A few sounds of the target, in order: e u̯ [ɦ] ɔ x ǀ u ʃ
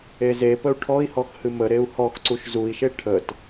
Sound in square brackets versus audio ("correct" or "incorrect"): incorrect